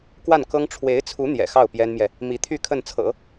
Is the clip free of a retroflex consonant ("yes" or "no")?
no